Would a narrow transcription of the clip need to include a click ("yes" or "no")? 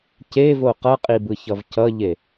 no